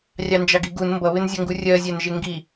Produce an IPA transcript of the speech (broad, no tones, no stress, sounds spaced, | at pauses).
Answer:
rʲ ɑ n d͡ʒ ɑ ɡ i ɡ u n m b ʌ β ɪ n zʲ ʌ ŋ ɡ u rʲ ɜ zʲ æ n ʒ ɪ ŋ ɡ i